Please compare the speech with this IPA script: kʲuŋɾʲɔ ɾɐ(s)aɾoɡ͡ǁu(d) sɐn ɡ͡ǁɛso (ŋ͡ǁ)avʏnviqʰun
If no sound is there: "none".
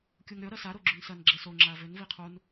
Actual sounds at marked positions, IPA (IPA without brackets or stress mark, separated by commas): s, n, ŋ͡ǁ